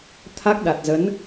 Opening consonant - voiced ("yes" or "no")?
no